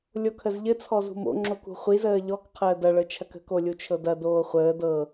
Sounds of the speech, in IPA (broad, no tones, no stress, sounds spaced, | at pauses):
lʲ o kʰ ə z ʎ ɘ t͡sʰ ɔ z ṳ m o̰ ŋ͡ǁ o k ṳ χʷ i z əː ʎ ɔ k qʰ əː d ɐ ɭ ɤ t͡ʃʰ ɐ k ə̤ k o lʲ u t͡ʃʰ ɤ d ɐ d oː χʷ əː d ɤ